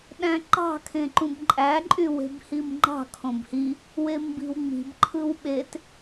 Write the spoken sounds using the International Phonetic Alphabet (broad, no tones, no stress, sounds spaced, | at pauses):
ɗ æ̃ ǃ ɑ̤ kʰ ẽ ǃ ũ b ǃʼ æ ǃʼ y w e̤ b h i m ŋ͡ǃ ɑ̤ kʰ õ b h i | w e m b i̤ w ŋ͡m i̤ b ǃʰ ɯ w ɓ e t